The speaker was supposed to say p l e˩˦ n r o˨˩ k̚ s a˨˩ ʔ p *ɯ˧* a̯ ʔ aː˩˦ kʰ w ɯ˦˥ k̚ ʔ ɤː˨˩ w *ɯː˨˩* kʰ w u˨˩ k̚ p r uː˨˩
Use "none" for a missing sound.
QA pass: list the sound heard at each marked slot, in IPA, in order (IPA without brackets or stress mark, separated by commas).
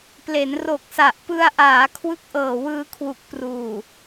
ɯ˧, ɯː˧